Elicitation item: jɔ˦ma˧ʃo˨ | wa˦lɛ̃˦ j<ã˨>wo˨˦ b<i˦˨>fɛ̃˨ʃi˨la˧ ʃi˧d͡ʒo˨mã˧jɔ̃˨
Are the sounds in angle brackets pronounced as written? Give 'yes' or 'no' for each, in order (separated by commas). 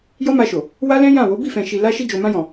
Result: no, yes